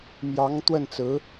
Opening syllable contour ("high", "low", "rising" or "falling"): rising